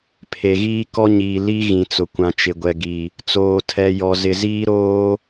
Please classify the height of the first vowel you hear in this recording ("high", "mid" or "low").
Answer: mid